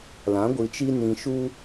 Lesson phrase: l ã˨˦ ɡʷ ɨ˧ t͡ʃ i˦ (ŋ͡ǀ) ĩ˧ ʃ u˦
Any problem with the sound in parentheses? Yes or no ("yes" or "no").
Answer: yes